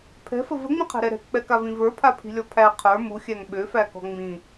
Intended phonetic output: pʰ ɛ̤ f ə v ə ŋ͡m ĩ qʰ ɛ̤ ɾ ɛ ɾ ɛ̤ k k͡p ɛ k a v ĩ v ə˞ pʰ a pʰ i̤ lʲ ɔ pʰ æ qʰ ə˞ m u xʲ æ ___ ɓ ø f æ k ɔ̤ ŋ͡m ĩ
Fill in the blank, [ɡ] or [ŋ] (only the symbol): ŋ